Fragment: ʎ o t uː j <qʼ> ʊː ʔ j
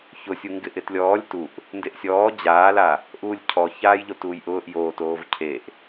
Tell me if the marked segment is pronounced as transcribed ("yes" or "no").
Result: no